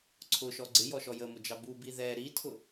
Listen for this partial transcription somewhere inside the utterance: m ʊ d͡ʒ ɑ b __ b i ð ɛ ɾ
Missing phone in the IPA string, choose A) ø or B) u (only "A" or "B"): B